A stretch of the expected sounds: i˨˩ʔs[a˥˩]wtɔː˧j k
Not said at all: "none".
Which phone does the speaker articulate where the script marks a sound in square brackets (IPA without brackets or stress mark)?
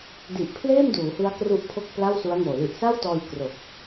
a˥˩